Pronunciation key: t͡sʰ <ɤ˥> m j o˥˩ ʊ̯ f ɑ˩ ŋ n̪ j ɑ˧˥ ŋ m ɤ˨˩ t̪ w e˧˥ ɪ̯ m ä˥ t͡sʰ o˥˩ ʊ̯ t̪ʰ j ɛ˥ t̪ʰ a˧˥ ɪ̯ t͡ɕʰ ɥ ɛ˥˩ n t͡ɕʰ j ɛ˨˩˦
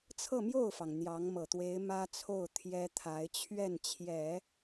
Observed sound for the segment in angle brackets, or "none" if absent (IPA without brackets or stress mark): ɤ˥˧